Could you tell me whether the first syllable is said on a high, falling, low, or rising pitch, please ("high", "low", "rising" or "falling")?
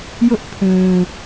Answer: high